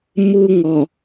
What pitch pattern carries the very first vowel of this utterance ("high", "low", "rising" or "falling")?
high